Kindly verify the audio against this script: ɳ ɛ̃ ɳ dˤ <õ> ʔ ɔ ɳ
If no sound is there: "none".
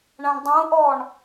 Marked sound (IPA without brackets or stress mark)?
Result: ũ